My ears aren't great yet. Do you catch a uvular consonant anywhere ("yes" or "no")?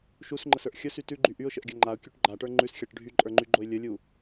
no